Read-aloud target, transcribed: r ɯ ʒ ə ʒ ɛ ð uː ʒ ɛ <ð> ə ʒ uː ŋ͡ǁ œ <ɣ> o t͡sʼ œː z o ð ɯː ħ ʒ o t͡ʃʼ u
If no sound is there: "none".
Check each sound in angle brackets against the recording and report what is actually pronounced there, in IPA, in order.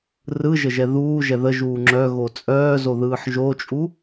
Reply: ð, ɣ

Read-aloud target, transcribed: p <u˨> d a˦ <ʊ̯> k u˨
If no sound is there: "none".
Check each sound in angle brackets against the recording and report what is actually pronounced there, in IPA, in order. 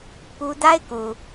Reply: u˦, ɪ̯

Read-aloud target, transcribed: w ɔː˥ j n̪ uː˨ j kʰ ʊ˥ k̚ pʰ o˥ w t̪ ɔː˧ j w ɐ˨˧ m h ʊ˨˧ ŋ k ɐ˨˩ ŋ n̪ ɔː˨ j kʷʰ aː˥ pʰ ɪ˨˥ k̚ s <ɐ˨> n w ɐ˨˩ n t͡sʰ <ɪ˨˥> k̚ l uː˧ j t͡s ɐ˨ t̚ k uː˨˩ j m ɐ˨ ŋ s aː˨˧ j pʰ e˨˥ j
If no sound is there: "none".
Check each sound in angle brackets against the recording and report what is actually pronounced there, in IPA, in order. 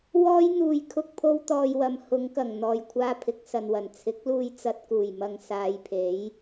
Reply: ɐ˨, ɪ˨˥

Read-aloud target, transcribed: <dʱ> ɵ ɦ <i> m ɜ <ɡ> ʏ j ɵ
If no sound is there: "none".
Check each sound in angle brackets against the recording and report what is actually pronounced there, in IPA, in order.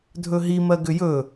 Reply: dʱ, i, ɡ

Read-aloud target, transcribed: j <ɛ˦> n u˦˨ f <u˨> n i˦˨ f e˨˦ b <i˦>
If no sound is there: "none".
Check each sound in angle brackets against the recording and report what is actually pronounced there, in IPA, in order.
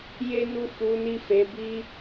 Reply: e˦, u˨˦, i˦

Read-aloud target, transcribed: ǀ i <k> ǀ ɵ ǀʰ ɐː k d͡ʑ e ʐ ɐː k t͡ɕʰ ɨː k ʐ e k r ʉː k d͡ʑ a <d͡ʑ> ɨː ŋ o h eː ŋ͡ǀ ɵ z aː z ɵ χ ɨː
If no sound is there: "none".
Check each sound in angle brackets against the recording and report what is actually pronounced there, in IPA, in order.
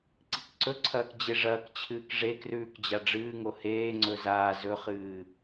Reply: k, ɖ͡ʐ

